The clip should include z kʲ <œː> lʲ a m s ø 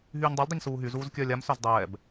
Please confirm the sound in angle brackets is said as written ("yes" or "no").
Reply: yes